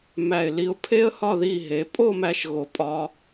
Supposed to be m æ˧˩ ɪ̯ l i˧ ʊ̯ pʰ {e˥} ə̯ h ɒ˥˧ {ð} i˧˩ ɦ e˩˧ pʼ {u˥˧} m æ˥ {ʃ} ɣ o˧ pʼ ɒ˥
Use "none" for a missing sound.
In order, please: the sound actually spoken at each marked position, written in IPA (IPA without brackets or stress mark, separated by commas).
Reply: e˥, ð, o˥˧, ʃ